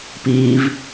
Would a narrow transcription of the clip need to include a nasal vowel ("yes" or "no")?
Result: no